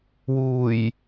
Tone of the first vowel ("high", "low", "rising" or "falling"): low